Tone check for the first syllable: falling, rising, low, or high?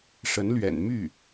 rising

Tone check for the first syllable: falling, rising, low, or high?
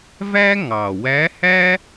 high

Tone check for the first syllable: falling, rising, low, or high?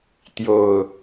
low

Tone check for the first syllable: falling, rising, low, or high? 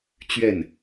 falling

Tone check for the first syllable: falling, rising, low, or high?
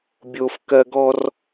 high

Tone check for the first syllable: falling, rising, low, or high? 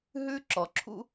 high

